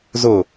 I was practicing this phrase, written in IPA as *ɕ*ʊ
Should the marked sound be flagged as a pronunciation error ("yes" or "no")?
yes